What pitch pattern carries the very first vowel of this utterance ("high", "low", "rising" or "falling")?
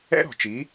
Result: high